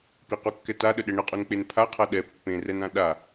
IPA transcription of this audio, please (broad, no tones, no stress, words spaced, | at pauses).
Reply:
piqukːɛ taɗəɗɛ ɳəqʼunk͡pen pʰaqʰa ɗɛ pːẽrɛnã ɗa